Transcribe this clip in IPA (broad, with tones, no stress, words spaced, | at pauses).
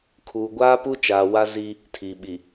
kʰuː˨ɡʷaː˦pu˦t͡ʃaː˨ wa˦ zi˦ | tʰiː˨ ɓi˨